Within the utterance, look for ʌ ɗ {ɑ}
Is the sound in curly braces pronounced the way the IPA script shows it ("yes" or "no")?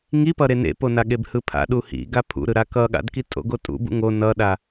no